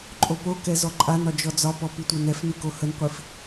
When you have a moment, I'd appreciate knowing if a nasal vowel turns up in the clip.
no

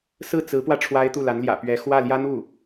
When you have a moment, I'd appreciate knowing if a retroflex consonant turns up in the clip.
yes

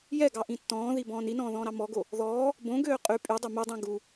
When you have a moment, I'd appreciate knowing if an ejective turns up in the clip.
yes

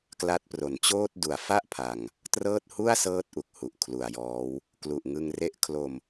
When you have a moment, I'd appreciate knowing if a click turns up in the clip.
no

